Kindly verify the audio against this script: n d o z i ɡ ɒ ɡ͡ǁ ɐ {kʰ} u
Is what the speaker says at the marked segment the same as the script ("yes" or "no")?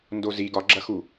no